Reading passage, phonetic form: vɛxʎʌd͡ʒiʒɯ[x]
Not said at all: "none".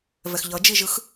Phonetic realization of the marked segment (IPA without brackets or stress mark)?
x